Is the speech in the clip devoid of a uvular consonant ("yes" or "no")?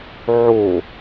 yes